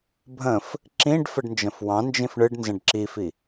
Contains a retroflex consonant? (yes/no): yes